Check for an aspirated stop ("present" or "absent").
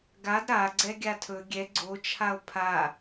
present